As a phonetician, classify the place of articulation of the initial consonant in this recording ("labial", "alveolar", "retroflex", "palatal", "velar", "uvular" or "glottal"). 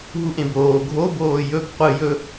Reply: glottal